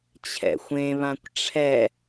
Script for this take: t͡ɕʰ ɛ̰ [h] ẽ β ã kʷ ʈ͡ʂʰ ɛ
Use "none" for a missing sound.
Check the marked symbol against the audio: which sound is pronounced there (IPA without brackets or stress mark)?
xʷ